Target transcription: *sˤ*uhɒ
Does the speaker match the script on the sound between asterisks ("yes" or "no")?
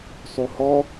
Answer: yes